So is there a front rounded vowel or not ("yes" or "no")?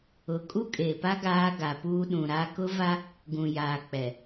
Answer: no